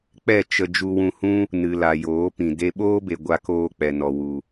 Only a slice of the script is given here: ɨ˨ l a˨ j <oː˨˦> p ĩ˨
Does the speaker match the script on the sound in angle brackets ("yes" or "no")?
yes